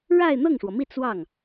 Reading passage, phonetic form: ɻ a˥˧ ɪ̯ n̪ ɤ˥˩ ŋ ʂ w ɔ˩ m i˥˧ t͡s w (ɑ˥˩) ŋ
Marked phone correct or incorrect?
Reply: correct